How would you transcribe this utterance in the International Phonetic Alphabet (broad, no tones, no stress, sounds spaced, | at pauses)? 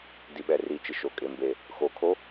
d i ɓ ɛ r i t͡ʃ ɪ ʃ o kʼ e m b e | x o kʰ o